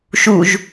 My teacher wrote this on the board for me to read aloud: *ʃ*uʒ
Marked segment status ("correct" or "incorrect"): correct